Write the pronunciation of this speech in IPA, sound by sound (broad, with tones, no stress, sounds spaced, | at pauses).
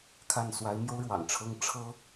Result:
kʰ a˥˩ n s w a˧˥ ɪ̯ m j o˥ ʊ̯ ɻ w ɑ̰˨˩ ŋ ʈ͡ʂʰ ɤ˥ ŋ ʈ͡ʂʰ ɤ˥